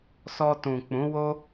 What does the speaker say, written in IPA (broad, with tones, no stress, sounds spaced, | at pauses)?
s ɔ˧ t ũ˨ k͡p ũ˨˦ w o˦